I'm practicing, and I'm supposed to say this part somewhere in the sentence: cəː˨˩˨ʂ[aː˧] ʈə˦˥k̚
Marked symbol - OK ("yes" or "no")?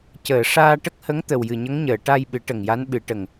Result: yes